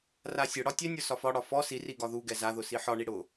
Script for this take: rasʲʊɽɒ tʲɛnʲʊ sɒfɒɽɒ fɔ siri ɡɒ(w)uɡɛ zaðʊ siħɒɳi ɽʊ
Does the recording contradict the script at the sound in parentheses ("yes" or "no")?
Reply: yes